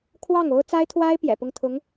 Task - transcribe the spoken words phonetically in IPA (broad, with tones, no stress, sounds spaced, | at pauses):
kʰ w ɑ˥˩ ŋ o˥ ʊ̯ t͡s a˥ ɪ̯ t̪ʰ w a˥ ɪ̯ p j ɛ̰˨˩ p ʊ˥˩ ŋ t̪ʰ ʊ˧˥ ŋ